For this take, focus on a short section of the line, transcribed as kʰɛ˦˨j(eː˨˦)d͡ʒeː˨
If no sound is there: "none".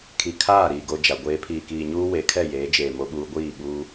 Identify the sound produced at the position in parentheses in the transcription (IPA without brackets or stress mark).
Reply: eː˨˦